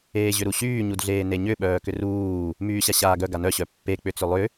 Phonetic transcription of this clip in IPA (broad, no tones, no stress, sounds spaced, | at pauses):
eː ʑ ʏ ɾ u ɕ yː ɲ u d ɮ eː n e ɲ ʏ ɓ œː k ʏ r uː | m yː ɕ a ɕ aː ɡ œ ɡ a n œ ɕ œ pː e k͡p ʏ t͡s ʏ lˠ ʏ